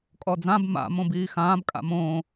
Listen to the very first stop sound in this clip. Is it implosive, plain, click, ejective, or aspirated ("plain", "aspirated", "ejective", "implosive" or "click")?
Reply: ejective